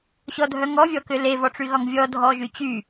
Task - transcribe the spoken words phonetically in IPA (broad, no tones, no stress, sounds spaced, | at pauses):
ɕ ɔ dʱ œ ŋ ɔ vʲ ɔ k ʏ l e v ɔ ʈ͡ʂ y ɣ ɒ ŋ vʲ ɔ dʱ ɔ ʒ y t͡ɕ y